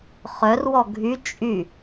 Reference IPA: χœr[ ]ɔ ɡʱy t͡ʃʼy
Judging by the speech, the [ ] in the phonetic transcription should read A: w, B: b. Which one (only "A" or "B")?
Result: A